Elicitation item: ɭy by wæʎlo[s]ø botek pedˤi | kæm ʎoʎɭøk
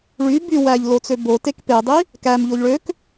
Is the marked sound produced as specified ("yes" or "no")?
no